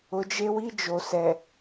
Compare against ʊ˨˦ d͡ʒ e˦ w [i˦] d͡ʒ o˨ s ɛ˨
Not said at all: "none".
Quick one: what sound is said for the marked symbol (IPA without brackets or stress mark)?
i˦